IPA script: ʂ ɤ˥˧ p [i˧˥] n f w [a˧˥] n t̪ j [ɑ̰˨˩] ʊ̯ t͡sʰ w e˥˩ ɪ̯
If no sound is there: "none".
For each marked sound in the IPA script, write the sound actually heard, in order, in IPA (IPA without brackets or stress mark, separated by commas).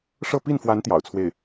i˥˩, a˧˥, ɑ̰˨˩